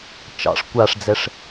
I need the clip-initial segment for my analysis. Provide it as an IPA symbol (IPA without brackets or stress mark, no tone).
t͡ʃ